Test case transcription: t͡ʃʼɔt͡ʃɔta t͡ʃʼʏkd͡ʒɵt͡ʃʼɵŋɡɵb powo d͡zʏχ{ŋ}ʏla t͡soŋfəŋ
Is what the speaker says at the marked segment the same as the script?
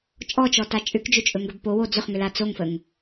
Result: yes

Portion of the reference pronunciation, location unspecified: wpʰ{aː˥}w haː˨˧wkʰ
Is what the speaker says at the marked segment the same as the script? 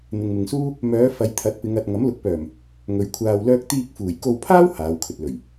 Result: yes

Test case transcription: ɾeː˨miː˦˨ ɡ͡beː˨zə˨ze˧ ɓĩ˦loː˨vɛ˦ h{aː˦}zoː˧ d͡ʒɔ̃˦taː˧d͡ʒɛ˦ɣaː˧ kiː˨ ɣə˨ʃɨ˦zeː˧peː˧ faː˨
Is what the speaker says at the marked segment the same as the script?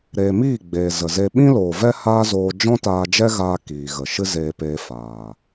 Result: yes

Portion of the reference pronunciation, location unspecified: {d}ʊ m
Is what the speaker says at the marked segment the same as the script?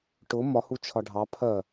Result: no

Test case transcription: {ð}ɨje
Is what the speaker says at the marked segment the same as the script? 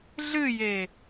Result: no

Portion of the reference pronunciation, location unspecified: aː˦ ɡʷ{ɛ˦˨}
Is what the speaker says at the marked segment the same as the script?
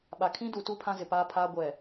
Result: no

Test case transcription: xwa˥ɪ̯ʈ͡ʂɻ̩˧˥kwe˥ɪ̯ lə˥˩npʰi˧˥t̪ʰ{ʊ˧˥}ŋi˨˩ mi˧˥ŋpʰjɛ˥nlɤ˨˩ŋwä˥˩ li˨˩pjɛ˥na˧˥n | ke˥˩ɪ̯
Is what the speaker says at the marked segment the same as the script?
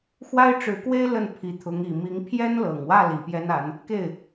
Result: yes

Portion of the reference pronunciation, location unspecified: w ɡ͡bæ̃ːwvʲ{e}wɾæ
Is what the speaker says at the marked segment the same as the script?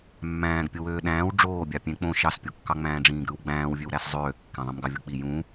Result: no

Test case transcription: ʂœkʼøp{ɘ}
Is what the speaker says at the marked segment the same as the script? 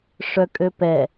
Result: no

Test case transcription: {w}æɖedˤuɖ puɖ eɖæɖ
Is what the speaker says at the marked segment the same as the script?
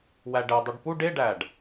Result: yes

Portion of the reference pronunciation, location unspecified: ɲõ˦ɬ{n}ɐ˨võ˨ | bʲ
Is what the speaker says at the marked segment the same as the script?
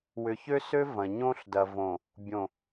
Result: no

